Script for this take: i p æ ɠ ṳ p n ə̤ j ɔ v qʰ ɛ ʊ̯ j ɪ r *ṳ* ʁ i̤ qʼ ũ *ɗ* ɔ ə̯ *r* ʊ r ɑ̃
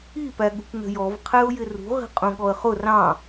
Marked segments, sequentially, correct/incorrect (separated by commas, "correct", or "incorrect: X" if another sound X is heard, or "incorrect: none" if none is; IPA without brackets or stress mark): correct, incorrect: ɠ, incorrect: χ